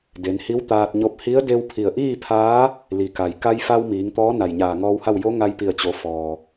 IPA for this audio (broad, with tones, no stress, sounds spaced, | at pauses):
d e˩˧ n h i˧˥ w t̪ aː˧ t̚ ɲ o˧ p̚ h i˧˥ ə̯ d e˧ w pʰ i˧˩ ə̯ ʔ iː˥˨ pʰ aː˧˥ | l i˩˧ k a˩ j k a˧ j f a˧ w m iː˩˧ ŋ t̪ ɔː˧˥ n a˧˩ j ɲ aː˧˩ ŋ ɔː˧ w h a˥˨ w j o˧˥ ŋ a˧ j p i˧˩ ə̯ t͡ɕ o˩˧ f ɔː˩